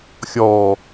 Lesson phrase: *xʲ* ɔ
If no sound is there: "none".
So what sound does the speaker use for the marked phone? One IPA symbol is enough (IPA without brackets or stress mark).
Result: xʲ